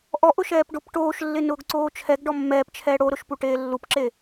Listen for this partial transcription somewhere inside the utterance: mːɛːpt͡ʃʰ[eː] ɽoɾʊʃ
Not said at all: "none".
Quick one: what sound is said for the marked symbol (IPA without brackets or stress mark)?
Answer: ɛː